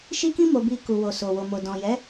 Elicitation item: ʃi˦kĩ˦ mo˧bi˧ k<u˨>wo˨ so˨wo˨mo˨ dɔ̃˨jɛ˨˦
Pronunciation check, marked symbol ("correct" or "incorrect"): correct